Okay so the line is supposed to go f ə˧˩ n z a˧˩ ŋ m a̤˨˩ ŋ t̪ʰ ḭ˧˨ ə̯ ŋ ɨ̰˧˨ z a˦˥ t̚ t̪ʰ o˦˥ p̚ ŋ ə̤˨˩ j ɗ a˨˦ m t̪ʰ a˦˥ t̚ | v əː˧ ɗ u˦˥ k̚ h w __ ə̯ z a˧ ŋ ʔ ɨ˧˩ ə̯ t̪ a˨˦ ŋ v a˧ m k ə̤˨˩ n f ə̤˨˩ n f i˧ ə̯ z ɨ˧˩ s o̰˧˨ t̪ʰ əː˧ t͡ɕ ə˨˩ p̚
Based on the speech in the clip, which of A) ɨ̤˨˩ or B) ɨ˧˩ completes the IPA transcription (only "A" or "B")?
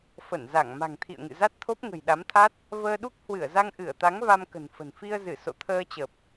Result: B